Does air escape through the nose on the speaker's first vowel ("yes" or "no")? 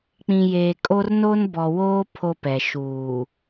yes